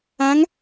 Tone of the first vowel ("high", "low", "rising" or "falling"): rising